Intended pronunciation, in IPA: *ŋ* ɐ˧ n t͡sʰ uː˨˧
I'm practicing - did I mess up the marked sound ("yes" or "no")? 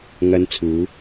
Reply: no